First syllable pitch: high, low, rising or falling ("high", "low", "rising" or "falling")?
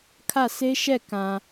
falling